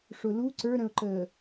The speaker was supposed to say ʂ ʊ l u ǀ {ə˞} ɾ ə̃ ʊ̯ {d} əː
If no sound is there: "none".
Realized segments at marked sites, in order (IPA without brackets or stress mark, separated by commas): ə˞, ǃ